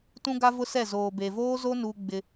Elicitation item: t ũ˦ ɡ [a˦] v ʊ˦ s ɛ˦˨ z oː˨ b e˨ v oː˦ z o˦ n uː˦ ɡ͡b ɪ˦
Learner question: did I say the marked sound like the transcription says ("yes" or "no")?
yes